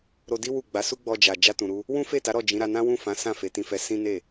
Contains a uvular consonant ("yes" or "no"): no